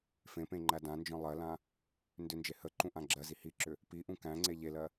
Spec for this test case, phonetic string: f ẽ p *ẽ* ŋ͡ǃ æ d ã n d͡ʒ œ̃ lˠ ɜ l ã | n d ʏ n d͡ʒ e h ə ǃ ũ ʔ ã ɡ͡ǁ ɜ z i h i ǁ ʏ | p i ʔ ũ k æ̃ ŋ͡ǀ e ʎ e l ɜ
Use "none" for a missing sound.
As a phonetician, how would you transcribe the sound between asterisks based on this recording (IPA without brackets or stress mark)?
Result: ẽ